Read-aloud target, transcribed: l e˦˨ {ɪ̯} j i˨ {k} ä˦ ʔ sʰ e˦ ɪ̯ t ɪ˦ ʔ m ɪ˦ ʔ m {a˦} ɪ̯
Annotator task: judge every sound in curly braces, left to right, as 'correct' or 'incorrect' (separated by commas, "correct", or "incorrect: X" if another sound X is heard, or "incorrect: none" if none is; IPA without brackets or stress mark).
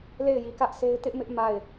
correct, correct, incorrect: a˦˨